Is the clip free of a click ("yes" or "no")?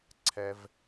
no